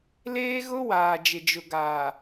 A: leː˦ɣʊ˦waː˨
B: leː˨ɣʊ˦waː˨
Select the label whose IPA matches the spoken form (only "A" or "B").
A